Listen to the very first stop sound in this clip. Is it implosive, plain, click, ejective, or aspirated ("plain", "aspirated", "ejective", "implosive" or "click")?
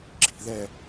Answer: click